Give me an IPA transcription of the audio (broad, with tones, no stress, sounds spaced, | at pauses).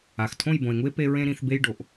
a˧˩ x tʰ õ˥˧ j b õ˧ e̯ ŋ u˥ e̯ p e˧ ɹ ẽ˧ ɾ ĩ˩˧ θ b e˧ j ɖ o˩˧ ʔ